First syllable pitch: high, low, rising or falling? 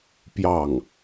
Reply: falling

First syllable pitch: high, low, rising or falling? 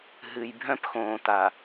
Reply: low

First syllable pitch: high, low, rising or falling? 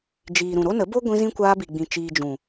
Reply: low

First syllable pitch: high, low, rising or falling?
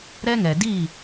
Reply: high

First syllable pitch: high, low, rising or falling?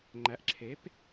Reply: rising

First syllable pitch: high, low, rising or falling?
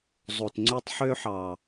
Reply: low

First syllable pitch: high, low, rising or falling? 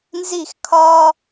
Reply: falling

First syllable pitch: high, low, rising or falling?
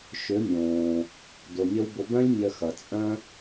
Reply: rising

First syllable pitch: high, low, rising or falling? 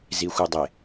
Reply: low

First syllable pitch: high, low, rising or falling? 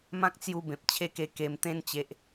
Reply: high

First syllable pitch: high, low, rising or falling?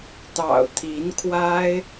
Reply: low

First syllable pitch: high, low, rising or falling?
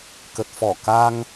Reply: low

